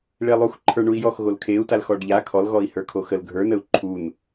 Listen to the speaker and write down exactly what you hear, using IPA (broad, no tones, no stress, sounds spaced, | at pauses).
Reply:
ɭ e lˠ u x ǃʰ ə˞ ɳ u i̯ j ɔ x ɣ o l kʰ e u̯ t a l x ɔ ɖ ʎ a kʰ ɔ l ɣ ɔ i̯ h ə˞ kʰ o x ə l ɡʱ ə˞ n ə u̯ ǃʰ u n